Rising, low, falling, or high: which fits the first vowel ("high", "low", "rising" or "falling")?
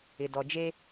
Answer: low